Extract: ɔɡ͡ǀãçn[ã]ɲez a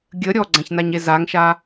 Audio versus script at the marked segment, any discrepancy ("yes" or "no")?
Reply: yes